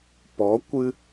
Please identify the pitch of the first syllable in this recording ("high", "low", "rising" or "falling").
rising